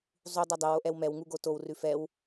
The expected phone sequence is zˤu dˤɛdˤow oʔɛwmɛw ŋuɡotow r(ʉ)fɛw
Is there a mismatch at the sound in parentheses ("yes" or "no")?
no